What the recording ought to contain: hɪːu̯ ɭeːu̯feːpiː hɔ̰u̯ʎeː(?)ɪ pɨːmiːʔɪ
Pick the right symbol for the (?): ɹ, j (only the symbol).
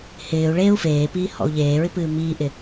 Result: ɹ